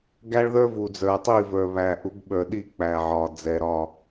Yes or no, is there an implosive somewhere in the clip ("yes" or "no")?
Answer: yes